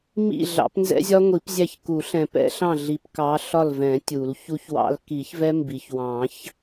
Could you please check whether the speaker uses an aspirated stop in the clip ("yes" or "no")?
no